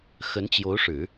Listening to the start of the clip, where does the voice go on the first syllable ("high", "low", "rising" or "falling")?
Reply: rising